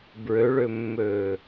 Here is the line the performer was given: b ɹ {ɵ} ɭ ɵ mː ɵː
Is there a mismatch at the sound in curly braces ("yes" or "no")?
no